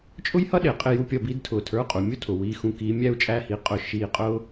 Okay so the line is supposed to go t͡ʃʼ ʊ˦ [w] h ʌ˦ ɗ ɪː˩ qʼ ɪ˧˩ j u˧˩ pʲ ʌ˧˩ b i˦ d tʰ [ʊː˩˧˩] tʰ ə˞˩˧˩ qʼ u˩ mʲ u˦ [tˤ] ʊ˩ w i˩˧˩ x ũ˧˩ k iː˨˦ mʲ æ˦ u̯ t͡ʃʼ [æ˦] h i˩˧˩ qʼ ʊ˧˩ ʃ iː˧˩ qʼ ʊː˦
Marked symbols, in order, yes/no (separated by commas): no, no, no, yes